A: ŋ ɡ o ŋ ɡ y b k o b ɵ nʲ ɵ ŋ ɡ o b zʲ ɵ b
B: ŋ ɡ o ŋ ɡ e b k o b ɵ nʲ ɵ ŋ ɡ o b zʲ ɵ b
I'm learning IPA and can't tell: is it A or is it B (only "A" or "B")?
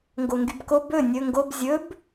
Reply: A